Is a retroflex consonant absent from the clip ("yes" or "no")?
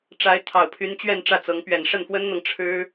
no